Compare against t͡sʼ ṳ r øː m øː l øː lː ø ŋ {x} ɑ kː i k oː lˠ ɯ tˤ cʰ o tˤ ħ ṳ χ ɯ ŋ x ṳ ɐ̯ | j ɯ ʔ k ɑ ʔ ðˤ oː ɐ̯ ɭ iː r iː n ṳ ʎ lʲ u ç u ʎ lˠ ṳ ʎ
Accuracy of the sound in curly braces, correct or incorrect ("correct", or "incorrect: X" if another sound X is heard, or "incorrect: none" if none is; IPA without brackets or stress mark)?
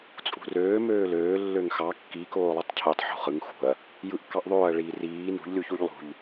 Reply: correct